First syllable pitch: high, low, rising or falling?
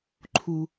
low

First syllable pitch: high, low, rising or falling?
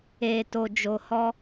low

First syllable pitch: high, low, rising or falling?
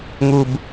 low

